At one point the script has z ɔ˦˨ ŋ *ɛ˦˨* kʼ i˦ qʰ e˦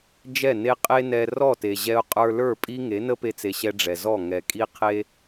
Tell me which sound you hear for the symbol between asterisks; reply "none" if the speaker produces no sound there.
ɛ˨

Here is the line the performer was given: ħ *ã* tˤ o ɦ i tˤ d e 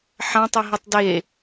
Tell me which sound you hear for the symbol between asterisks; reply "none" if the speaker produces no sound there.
ã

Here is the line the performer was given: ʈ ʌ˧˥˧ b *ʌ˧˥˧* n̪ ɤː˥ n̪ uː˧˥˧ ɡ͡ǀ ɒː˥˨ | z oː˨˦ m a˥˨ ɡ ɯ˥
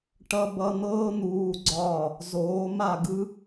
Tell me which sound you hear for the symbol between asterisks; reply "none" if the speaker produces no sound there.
ʌ˧˥˧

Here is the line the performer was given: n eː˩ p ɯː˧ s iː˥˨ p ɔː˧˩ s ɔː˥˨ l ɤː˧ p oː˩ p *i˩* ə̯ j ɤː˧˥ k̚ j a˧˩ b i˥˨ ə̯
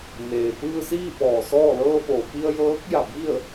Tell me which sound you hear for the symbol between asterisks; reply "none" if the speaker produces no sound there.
i˧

